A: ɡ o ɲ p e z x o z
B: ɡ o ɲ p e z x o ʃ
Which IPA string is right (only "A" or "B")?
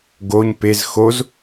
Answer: A